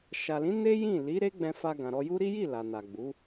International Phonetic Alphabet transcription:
ʃ a˨ l ĩ˨˦ n e˦ j ĩ˦˨ l i˨˦ ɾ e˦ ɡ͡b ɛ̃˧ f a˧ ɡ ã˨ ɾ ɔ˧ j u˦ ɾ i˦ j i˦˨ l a˨ n a˨ ɡ͡b u˨˦

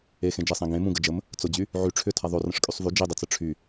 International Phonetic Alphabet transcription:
e x ẽ d͡ʒ e sˤ ẽ ɡ ẽ m ũ ɡ ə d͡ʒ ə m | t͡s ʊ d͡ʑ y | ʕ y ʈ͡ʂʰ ʏ tʰ a ðˤ o r ə̃ ʂ kʼ y sˤ v y d͡ʒ i dˤ ə t͡s ə ʈ͡ʂʰ y

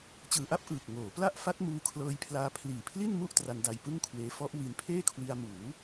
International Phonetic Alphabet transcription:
t͡ɕ ɯː˨˩ ʔ a˥˩ p̚ ʔ ɯː˨˩ k̚ ŋ oː˩˦ p l a˥˩ ʔ f a˦˥ t̚ m uː˧ kʰ l ɤː˧ j pʰ l aː˧ pʰ l iː˨˩ pʰ l i˥˩ n m u˥˩ ʔ t r a˧ n d a˧ j p ɯ˥˩ ŋ kʰ w eː˦˥ f ɔ˦˥ ʔ w i˧ n pʰ eː˥˩ kʰ w i˧ a̯ m uː˩˦

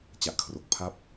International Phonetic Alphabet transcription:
t͡ɕ a˨˩ ʔ kʰ r o˨˩ k̚ pʰ a˥˩ p̚

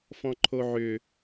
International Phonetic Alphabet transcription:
f ɔ̃ ǃʰ o ʕ ʏ

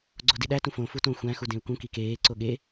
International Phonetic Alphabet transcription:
ɡ͡ǀ o d i ɗ æ t ũ f õ f u t õ xʷ æ̃ x u d ẽ u̯ k ũ k i k eː ǀ o ɠ e

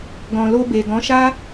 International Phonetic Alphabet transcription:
ɡ ɔ̃˨ l o˧ b e˨ ɡ ɔ̃˨˦ ʃ a˦

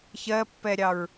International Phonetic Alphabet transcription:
ç ɜ pː ɛ ɾʲ ɑ ɹ

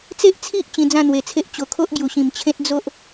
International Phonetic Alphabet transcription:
t͡s e˦ ʔ t͡sʰ i˦ ʔ t͡ɕ ĩ˧ d͡z ã˥˧ n̪ w e˨˩ t͡sʰ e˦ ʔ t͡ɕ o˨˩ kʰ o˦ ʔ ɡ j u˨˩ ɕ ĩ˨˩ m t͡ɕʰ ẽ˦ t̚ d͡z o˦ ʔ

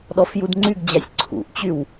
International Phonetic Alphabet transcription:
ɗ ɔ f j u d ŋ͡ǀ y ɡ d͡ʑ a sʲ ǀʰ ṵ ʔ t͡ɕ y w

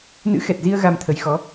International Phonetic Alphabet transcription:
n ɨ̰˧˥ x ɛ˨˩ t̚ z i˧ ə̯ ɣ a˧ m t̪ʰ ə˨˦ j x ɔ˨˦

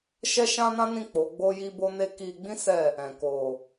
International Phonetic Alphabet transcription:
ʃ ɛ˦ ʃ ã˦ n ã˦ n ĩ˦˨ k͡p o˨˦ ɡ͡b o˦ j i˦ b o˦ n e˦ k i˧ ɡ͡b ĩ˦ s ɛ˦˨ | ɛ̃˨ k o˨

